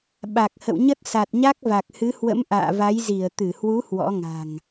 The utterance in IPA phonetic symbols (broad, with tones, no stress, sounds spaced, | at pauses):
ɓ a˨˩ k̚ h ə̰˧˨ w ɲ ə˦˥ t̚ s a˨˩ t̚ ɲ a˦˥ k̚ v a˨˩ k̚ h ɨ˨˦ h w ə̰˧˥ m ʔ a̰ː˧˨ v a˨˦ j z i˧˩ ə̯ t̪ ɨ˧˩ h w u˨˦ h w ɔ̰˧˥ ŋ a̤˨˩ ŋ